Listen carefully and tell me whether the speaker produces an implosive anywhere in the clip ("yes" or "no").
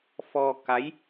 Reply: no